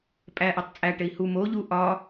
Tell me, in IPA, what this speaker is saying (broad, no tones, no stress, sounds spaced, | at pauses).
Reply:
pʼ æ ʔ i tˤ t͡sʼ æ ʈ e i̯ h u m o ʎ u ʔ ɒ